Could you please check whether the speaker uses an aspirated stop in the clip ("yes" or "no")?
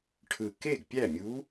yes